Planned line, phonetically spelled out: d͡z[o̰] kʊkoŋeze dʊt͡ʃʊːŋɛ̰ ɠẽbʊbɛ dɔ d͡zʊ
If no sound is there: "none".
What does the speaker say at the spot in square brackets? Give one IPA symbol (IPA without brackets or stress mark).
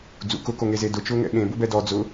ṵ